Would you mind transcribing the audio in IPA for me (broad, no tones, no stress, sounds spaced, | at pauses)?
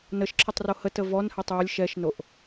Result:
n ə ʃ ǁʰ ə tˤ r o h ə t ə v ɔ n h ɛ tˤ j ə lʲ ʃ ɛ ʃ n o ʔ